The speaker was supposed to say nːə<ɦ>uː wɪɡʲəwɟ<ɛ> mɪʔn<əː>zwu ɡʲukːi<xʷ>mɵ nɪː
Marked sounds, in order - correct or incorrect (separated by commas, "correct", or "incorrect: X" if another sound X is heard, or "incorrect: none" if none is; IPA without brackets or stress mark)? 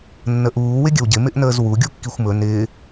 incorrect: ʔ, incorrect: ɪ, correct, correct